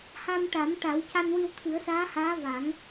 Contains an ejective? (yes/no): no